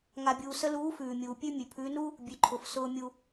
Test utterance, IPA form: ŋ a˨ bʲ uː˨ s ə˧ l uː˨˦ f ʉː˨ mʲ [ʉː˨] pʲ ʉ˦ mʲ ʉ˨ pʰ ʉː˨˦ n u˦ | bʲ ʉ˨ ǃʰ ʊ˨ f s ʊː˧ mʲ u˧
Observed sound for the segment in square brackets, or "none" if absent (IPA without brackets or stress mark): uː˨